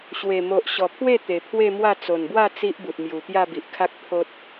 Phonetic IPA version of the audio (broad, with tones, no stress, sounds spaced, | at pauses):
ɕ w e˨˩ m o˨ ʔ ɕ ɔ˨˩ pʰ w e˥˧ t̪ e˨˩ pʰ w e˥˧ m w a˥˧ t͡s o˨˩ n b w a˥˧ t͡s i˦ ʔ b u˨ t̚ m j u˨˩ t̪ j a˥˧ b i˨ ʔ kʰ a˦ k̚ pʰ o˦ t̚